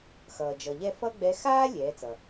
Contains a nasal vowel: no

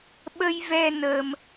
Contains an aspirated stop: no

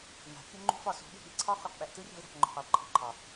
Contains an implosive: yes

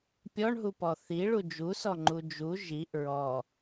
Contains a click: yes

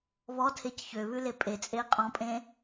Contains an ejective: yes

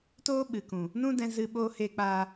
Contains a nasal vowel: yes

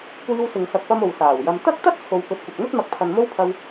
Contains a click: no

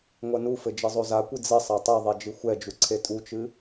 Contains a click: yes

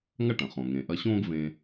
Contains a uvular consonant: yes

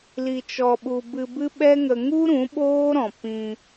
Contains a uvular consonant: no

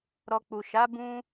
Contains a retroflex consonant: no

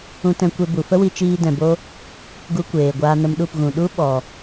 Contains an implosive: yes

